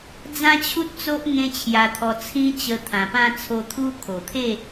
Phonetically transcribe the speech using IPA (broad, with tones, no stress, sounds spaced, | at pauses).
d͡z ã˦ t͡ɕʰ u˦ t̚ t͡s o˦ ʔ ŋ ẽ˦ t͡ɕʰ j a˧ t̪ʰ ɔ˧ t͡sʰ ĩ˦ t͡ɕ ə˧ t̪ʰ ã˨˩ p ã˥˧ t͡sʰ o˧ t̪ʰ u˦ kʰ o˨˩ t̪ʰ e˥˧